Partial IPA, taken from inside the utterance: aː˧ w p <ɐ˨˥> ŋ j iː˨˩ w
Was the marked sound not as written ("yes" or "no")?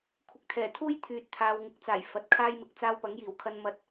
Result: no